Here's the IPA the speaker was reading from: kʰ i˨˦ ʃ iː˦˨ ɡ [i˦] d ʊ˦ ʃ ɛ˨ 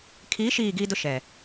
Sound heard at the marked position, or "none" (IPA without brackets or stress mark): i˦